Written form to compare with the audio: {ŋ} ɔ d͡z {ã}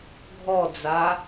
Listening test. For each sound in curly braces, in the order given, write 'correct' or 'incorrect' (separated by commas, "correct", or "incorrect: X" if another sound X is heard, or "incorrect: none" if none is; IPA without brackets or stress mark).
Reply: incorrect: ɡʱ, incorrect: a